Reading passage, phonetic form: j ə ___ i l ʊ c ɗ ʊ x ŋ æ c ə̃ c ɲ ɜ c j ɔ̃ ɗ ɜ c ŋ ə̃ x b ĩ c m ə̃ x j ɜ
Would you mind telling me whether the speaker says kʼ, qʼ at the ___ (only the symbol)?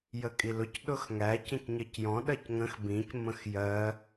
kʼ